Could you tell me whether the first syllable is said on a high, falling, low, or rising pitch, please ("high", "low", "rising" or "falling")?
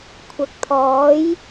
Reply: low